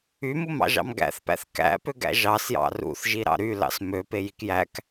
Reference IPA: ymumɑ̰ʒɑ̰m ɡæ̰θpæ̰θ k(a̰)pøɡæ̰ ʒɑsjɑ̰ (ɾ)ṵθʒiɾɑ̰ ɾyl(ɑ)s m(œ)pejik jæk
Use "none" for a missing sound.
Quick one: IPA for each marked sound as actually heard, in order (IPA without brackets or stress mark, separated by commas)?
æ̰, r, ɑ̰, ø